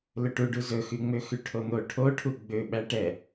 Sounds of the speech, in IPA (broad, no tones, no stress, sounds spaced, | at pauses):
l ɵ ʈ u ɖ u z ɵ x y ŋ͡m ø x y ʈʰ o n̪ o ʈʰ o ʈʰ u ɡ͡b ø ɓ æ ʈ ɛ